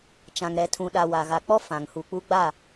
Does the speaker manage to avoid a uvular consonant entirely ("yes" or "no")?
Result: yes